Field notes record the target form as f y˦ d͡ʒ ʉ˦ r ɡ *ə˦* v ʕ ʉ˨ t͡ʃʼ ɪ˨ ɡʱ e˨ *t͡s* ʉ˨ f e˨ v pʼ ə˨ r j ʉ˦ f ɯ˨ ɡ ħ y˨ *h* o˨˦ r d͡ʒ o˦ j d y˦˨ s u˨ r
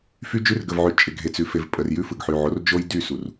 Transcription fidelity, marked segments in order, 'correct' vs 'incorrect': incorrect: ə˨, correct, incorrect: ʕ

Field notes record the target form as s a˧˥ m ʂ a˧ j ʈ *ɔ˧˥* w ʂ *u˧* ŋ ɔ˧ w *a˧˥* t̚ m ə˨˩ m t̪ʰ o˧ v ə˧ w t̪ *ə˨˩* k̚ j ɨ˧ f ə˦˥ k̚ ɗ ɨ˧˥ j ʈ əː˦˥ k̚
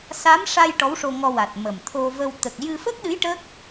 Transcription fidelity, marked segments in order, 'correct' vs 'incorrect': correct, incorrect: o˧, incorrect: a˨˩, correct

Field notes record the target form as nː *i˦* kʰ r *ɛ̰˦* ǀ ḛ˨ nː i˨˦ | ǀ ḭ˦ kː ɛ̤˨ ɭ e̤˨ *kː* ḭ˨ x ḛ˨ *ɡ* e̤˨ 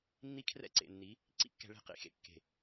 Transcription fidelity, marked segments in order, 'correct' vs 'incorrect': correct, correct, incorrect: q, incorrect: kː

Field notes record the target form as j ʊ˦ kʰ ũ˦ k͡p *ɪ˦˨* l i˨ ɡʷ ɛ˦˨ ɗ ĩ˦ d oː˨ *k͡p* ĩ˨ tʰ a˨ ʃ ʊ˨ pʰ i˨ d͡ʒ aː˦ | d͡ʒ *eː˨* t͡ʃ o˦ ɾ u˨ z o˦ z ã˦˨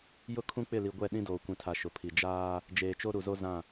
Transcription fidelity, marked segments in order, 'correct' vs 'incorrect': correct, incorrect: kʷ, correct

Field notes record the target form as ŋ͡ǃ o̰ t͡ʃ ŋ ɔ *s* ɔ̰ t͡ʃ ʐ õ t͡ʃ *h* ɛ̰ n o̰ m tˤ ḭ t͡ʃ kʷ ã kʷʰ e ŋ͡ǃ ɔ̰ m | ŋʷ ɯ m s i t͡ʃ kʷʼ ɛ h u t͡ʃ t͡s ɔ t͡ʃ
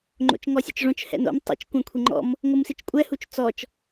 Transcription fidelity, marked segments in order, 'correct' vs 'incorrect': incorrect: sʲ, correct

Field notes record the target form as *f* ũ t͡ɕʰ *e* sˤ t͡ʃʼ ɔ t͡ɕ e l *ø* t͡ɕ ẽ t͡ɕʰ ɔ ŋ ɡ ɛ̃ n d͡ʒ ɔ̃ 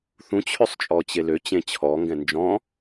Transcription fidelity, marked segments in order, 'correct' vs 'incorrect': incorrect: θ, incorrect: ø, correct

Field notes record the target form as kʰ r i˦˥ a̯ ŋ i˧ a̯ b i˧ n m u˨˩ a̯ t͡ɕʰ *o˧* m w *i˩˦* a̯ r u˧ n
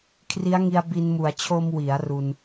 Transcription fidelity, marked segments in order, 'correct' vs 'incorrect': correct, correct

